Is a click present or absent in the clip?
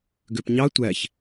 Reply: absent